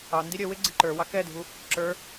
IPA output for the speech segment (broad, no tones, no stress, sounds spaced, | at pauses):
ɑ n d i ɾʲ ə w ɪ ɡ͡ǀ ɪ ǃ ə˞ w ɑ k ɛ dʱ u | ǁ ə˞